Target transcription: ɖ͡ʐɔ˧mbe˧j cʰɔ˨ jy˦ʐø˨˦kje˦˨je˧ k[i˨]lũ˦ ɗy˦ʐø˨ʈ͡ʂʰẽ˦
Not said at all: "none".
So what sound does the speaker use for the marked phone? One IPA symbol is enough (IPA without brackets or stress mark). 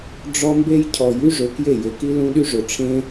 i˦